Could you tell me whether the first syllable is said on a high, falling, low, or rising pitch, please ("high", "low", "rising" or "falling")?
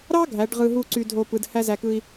high